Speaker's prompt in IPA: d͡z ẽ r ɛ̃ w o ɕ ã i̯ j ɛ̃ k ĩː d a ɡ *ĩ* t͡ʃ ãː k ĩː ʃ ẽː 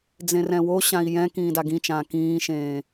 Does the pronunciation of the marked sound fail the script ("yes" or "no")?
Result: no